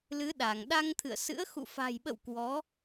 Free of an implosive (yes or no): no